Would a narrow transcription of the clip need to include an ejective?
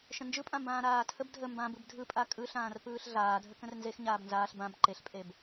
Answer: yes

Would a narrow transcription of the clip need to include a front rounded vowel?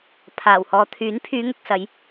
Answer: yes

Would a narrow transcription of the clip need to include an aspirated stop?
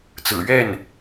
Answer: no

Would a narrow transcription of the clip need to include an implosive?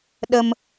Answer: yes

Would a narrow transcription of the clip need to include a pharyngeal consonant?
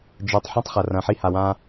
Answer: yes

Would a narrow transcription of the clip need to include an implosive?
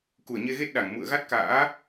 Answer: yes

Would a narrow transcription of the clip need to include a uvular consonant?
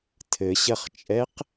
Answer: yes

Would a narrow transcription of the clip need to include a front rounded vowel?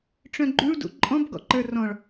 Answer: yes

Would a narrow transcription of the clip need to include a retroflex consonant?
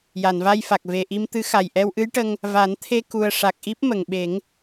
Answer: yes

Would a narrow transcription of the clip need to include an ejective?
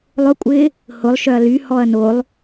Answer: yes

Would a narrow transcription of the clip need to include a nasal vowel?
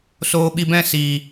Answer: yes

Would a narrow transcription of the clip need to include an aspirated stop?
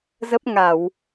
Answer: no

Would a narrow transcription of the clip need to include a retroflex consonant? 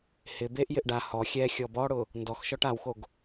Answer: yes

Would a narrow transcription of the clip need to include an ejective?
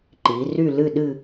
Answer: no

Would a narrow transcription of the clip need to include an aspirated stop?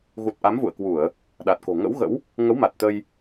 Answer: no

